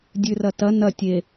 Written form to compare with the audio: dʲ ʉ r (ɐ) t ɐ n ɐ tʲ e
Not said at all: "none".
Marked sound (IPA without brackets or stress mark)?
ɐ